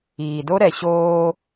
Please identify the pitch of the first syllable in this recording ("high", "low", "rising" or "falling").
low